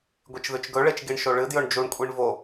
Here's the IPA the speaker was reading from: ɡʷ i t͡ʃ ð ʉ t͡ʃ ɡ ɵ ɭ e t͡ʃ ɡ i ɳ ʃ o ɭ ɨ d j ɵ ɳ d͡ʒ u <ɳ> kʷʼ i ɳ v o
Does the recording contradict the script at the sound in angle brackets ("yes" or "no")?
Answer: no